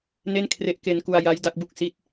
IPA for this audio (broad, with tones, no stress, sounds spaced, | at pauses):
n e˥˩ n kʰ r e˦˥ ʔ k e˧ n k u˧ a̯ j a˦˥ j d a˦˥ k̚ b u˥˩ k̚ s i˥˩ t̚